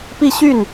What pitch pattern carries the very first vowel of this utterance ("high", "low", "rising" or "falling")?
falling